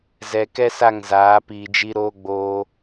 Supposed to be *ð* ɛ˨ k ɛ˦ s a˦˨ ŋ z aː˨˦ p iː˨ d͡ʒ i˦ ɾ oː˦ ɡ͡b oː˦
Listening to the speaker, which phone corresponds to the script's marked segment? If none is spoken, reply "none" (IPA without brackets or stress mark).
z